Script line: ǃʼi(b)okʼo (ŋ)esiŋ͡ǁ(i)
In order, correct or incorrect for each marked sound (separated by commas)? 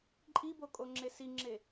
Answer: correct, incorrect, incorrect